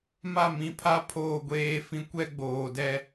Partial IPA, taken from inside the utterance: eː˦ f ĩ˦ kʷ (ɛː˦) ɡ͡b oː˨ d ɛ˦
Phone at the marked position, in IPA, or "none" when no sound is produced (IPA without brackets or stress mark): ɛ˦